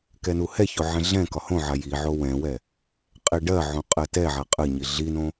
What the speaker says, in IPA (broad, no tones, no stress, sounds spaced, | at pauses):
k ɛ n u h ɛ ç o ʕ ɛ̃ ɮ ɛ̃ k ɒ h õ ʕ a j i ʕ o w ɛ̃ w ɛ | qʼ ɛ ɖ ɜ ʕ õ qʼ ɜ t ɛ ʕ a qʼ ə ɲ i ɮ i n õ